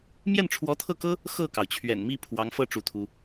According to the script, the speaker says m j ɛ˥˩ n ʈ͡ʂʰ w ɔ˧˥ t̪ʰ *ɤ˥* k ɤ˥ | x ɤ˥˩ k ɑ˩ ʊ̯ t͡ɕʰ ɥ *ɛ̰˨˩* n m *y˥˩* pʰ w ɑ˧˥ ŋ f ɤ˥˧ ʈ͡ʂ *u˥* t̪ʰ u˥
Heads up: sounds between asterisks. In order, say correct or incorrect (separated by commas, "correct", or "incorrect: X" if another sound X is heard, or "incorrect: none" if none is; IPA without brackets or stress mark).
incorrect: ɤ˥˩, correct, incorrect: i˥˩, incorrect: u˥˩